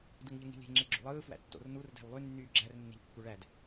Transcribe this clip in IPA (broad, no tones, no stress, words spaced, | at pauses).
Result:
dɯŋʎɯŋi̤lʲe̤ ŋ͡ǁeɡ͡ǁo̰lˠɯː fwæ̰tːo̰r nur dæ̤wlˠy nːyːɡ͡ǁær nːe̤ʎkːuɭæd